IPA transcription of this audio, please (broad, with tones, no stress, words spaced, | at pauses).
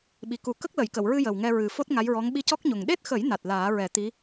ɓi˨˩ku˨˩˦ kə˦˥k̚lə˨˩˨jkə˨˩˨wɹɨ˧ jə˨˩wŋɛ˧ ɹɨ˨˩fo˦˥t̚ ŋa˧˥jɹɔ˧˥ŋ ɓi˧cɔ˦˥k̚ɲo˨˩ŋ ɗe˦˥t̚xə˨˩˦j na˨˩t̚laː˨˩˦ɹɛ˨˩˦t̪i˧˥